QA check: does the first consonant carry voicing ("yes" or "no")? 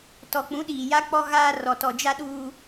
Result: no